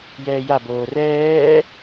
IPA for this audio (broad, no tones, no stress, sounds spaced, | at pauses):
j ɛː j a b oː r ɛː